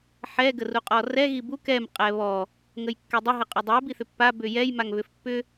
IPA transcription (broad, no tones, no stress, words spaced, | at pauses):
ħɛ ɡəruqʼɔrɛ ɣibuk ɛm qʼɛβɔ | ŋəjkːɛdˤə ɦəqʼʏdˤɛ biθʏpːa bʏjɛj maŋβʏfpːʏ